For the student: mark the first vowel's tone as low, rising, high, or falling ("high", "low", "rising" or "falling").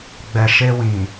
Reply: low